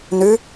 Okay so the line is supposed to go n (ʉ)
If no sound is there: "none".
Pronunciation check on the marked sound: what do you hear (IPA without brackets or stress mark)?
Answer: ʉ